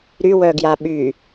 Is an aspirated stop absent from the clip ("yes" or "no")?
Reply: yes